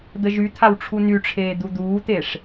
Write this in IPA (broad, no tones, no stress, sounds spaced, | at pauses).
d̪ ə ʒ y t̪ʰ a w ʈ͡ʂʰ u n y ʈ͡ʂʰ eː d̪ u d̪ uː t̪ e ʂ